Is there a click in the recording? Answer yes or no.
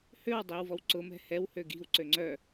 yes